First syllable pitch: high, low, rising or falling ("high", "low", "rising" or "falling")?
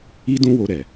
high